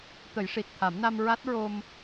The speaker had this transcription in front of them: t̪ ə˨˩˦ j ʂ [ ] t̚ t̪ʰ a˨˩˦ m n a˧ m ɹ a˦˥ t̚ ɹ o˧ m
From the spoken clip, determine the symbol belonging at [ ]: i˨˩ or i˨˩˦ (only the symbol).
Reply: i˨˩